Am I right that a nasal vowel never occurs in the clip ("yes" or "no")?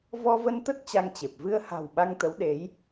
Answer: yes